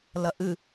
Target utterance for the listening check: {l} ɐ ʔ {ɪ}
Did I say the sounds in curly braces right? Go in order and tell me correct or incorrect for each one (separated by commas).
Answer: correct, incorrect